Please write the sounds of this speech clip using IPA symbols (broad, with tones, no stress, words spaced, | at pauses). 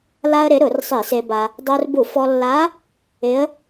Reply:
la˧ə̯ ɾɪ˩˥ ɾʊ˧˩˧rsˤi˧˩˧se˧ba˧ | dˤo˧rbu˧˩˧fɔ˧lːa˧˥ | ɪ˧˥ə̯